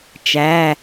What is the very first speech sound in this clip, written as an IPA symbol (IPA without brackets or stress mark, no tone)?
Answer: t͡ʃ